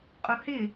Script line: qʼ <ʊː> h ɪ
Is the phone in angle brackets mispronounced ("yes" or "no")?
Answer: yes